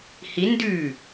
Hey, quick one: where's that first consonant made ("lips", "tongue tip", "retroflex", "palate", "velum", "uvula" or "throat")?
throat